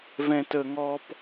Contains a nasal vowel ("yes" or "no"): yes